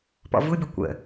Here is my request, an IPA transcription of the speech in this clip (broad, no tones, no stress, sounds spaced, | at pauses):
p ɔ̰ v u bʲ ə kʷ ə̰